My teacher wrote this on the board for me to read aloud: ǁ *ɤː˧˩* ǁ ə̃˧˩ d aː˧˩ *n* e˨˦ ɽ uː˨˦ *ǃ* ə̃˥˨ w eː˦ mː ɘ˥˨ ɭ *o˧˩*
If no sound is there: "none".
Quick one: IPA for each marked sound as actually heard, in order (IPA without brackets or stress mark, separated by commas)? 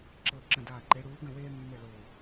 ɤ˧˩, ǃ, ɡ, o˧˩